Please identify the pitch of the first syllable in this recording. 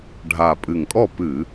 low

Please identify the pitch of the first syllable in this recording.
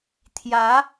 rising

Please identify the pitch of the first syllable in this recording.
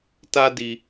high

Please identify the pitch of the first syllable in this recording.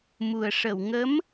low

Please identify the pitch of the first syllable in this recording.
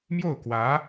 falling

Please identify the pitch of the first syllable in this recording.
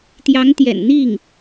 rising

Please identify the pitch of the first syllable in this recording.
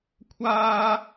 high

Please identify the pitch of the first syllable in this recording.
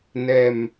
low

